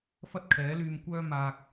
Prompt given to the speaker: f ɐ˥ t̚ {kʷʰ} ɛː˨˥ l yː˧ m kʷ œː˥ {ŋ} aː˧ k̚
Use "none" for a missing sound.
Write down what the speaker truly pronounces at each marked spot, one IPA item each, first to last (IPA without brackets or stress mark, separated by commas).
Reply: kʰ, m